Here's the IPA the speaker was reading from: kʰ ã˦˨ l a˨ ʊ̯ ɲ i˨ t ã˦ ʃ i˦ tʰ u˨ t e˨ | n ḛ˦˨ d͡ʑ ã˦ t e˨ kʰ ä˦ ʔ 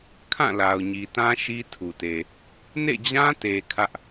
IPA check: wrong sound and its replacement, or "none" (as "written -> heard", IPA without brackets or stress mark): none